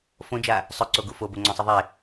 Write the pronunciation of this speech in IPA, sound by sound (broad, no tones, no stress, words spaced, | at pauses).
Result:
fõd͡ʒa | sˤɵǀoɡu foboŋ͡ǀɔ̃sˤɨ ðˤe